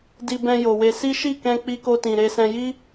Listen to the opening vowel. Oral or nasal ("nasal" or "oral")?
oral